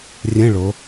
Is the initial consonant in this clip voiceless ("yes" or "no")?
no